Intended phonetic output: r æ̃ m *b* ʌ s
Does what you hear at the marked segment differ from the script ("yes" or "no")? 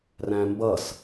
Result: no